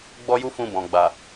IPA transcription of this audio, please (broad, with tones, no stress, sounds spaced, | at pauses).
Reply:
ɡ͡b ɔ˦ j u˦ f ũ˧ b ɔ̃˨ ɡ͡b a˨